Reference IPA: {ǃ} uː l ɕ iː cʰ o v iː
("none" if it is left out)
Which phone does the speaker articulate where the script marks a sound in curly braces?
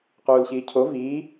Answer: q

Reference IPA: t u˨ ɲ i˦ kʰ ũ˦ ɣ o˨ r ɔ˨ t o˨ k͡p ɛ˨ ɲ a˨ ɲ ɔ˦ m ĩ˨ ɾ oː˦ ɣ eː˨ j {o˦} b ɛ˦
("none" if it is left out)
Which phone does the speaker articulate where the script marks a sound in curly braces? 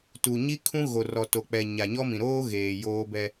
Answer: oː˦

